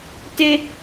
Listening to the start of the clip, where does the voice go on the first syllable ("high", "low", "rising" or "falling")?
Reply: high